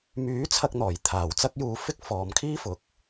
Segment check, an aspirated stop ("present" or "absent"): present